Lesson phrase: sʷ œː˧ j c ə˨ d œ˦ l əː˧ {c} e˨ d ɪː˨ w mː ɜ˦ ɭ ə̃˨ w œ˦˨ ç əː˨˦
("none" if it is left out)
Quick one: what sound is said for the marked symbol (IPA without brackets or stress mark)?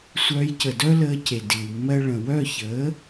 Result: c